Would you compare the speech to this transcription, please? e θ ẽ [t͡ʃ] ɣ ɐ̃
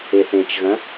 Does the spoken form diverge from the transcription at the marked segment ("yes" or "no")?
no